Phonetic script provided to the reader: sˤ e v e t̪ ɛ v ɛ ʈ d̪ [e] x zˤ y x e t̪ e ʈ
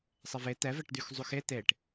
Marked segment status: incorrect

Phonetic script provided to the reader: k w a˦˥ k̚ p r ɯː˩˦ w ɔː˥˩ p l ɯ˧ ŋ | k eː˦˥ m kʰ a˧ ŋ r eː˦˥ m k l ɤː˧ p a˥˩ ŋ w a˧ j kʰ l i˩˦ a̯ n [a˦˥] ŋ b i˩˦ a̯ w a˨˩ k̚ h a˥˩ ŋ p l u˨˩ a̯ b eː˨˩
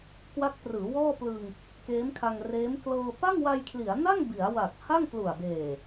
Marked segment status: incorrect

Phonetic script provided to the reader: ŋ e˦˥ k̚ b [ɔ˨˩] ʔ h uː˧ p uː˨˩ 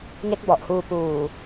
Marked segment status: correct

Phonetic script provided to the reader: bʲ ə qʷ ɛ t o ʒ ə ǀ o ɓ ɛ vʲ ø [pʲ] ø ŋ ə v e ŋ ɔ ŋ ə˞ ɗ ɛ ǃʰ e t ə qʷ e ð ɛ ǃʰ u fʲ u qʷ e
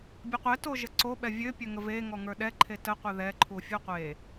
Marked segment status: correct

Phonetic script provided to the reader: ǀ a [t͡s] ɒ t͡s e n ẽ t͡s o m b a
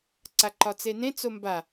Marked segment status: incorrect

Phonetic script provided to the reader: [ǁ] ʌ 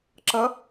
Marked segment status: correct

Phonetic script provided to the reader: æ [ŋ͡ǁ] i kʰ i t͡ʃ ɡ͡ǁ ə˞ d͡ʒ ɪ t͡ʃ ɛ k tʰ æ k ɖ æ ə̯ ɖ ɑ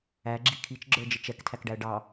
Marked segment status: incorrect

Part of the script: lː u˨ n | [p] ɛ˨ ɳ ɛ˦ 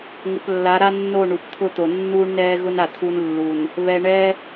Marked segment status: incorrect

